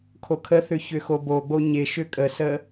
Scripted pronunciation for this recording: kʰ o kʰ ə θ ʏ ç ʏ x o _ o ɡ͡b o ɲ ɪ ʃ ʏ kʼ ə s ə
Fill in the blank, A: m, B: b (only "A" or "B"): B